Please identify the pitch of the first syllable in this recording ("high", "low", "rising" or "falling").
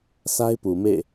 high